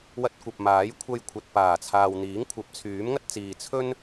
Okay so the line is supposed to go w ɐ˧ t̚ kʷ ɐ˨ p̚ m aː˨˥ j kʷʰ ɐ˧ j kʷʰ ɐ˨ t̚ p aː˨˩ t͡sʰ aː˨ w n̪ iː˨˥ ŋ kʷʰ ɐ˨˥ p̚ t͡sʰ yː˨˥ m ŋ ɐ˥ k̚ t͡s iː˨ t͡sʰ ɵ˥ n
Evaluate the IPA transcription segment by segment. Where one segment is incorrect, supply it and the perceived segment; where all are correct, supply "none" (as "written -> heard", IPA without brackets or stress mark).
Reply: k̚ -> t̚